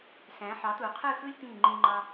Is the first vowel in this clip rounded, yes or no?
no